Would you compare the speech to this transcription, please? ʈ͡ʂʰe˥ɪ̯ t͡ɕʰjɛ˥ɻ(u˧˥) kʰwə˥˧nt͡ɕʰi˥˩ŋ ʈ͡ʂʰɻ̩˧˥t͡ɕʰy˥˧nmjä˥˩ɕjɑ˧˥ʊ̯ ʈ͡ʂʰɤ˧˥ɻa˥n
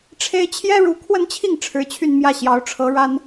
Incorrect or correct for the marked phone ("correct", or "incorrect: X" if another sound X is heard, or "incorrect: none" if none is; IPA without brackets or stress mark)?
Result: correct